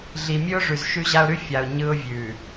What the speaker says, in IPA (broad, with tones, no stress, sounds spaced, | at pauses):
ɮ i˨ mʲ ʉ˦ ʊ̯ ʐ ʉ˨ z ʃ ʉ˦ ʑ a˦ ʊ̯ ɾ ʉ˦ fʲ a˨ ʊ̯ ɲ ɯ˦ ʊ̯ vʲ ʉ˨